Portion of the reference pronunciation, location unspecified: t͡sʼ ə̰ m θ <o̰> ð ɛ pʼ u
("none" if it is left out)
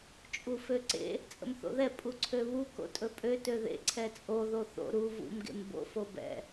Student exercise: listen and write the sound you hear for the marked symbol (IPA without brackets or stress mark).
o̰